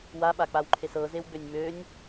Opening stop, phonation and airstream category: implosive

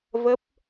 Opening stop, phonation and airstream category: plain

